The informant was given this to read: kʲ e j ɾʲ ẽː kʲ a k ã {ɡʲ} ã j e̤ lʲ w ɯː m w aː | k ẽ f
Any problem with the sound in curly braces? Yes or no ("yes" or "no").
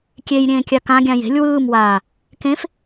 no